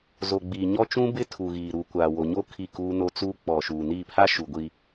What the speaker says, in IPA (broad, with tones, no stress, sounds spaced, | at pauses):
z o˨ ɡ͡b iː˨ ɲ ɔ˦ t͡ʃ ũ˦ b ɪ˦ tʰ u˨ ɣ iː˨ ɾ u˨ kʷ aː˨ w o˨ ɲ o˦ kʰ i˦˨ k uː˦ n o˦ t͡s uː˦ k͡p ɔ˨ ʃ uː˨ n iː˦˨ pʰ a˦ ʃ u˨ ɡʷ i˨